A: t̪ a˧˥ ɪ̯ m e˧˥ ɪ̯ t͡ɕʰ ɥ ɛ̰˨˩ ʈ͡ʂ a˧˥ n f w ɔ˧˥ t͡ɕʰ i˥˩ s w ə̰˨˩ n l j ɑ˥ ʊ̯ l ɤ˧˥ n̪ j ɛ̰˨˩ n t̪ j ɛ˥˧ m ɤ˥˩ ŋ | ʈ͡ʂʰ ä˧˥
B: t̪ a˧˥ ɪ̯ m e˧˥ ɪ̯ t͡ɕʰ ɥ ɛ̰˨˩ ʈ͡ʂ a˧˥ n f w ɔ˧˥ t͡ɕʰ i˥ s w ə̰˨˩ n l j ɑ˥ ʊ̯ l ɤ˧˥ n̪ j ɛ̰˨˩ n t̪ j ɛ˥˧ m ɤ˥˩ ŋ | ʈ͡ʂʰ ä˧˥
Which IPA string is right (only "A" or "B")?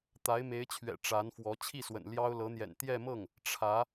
A